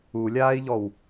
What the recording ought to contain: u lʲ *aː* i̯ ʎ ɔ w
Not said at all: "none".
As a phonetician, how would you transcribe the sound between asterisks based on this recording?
aː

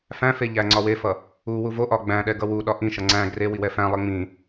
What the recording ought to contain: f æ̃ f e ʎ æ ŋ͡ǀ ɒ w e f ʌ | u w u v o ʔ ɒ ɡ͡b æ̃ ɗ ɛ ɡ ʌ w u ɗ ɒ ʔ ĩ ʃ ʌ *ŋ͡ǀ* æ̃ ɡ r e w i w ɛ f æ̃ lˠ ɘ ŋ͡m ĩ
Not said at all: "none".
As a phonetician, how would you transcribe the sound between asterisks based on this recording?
ŋ͡ǀ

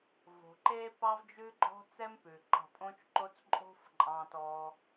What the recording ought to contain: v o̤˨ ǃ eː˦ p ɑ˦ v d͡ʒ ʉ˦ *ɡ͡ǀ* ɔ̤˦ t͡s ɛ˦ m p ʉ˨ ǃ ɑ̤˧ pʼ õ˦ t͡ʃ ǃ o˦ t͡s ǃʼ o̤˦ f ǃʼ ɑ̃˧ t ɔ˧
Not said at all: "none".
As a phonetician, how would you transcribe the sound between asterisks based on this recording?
ɡ͡ǃ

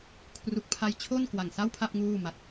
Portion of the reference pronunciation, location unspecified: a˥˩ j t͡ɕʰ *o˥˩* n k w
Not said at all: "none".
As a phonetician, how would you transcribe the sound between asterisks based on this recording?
o˥˩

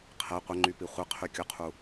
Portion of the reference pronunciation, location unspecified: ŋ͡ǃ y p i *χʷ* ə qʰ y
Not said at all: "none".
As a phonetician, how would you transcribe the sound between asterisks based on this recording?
χʷ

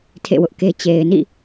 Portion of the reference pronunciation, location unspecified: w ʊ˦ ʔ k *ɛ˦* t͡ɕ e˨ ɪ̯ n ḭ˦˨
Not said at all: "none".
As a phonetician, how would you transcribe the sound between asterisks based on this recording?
e˦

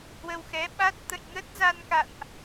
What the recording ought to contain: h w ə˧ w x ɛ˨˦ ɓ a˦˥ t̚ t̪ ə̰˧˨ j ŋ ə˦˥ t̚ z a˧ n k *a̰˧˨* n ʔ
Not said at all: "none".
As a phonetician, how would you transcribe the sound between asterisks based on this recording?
a̰˧˨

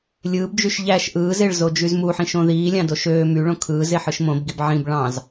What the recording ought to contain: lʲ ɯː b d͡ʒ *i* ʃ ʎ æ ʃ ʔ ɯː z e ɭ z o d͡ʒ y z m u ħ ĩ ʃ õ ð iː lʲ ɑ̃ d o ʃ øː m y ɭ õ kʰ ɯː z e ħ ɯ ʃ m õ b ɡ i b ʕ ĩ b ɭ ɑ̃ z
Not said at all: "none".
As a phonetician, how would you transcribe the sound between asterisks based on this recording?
y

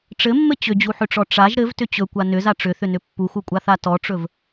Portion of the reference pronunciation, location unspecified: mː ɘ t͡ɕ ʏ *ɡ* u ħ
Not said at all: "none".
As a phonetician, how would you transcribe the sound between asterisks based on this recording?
d͡ʑ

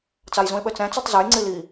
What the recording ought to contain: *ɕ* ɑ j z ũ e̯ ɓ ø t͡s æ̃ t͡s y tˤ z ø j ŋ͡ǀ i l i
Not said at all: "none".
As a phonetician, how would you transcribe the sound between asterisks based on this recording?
t͡s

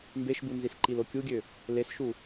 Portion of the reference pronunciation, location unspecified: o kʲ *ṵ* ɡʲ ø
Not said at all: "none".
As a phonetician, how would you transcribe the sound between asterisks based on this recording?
u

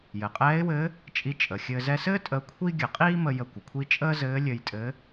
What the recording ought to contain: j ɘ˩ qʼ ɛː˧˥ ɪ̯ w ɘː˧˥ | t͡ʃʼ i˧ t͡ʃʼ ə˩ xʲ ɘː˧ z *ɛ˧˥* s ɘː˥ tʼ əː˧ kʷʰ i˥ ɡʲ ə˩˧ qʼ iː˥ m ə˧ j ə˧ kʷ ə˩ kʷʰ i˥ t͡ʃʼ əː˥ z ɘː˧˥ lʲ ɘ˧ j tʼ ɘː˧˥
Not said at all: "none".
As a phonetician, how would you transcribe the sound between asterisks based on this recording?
ɛ˧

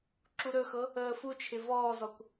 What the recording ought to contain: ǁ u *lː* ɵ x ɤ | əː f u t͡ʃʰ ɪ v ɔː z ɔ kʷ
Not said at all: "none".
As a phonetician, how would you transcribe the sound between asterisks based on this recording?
ɾ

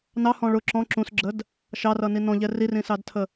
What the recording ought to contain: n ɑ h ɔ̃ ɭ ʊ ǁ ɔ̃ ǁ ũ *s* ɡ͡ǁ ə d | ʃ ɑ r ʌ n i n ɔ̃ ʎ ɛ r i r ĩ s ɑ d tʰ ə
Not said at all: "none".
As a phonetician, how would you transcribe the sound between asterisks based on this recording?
s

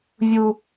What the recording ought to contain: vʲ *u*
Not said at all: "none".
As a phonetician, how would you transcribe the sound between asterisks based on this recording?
u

